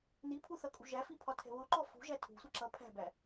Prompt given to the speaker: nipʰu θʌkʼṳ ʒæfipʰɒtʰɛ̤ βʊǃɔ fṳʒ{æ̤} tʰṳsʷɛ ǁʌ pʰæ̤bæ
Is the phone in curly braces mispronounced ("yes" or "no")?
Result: yes